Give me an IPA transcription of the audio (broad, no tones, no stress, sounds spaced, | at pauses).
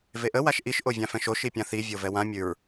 v e ʔ ə w a ʃ ʔ i ʃ ʔ o vʲ ã f ɛ̃ ʃ o ʃ i pʲ ã θ i vʲ o v ɛ w ã mʲ ʉ ɹ